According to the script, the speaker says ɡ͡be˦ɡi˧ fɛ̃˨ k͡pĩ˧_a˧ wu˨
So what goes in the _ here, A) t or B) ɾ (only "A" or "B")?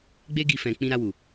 B